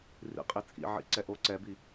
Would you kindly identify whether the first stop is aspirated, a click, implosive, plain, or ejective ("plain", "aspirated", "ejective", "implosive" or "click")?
ejective